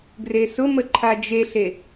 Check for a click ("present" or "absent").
present